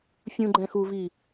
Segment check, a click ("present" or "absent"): present